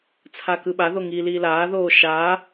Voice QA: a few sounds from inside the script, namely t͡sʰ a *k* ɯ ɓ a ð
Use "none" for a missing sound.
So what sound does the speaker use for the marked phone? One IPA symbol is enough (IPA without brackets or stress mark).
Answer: k